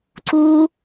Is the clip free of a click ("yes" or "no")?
no